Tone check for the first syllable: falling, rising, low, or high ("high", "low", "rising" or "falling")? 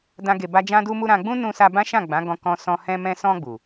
high